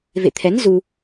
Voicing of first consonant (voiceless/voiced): voiced